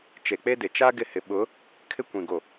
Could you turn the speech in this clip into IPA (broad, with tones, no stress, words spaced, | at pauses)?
t͡ʃe˨k͡pe˦dɪ˨ t͡ʃa˦ ɡɪ˦˨hɪ˨ ɓʊ˨˦ | kʰɪ˦kʷĩ˨ ɡo˨